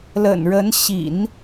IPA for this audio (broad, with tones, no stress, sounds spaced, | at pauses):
l ə̰˨˩ n ɻ ə˧˥ n ɕ ḭ˨˩˦ n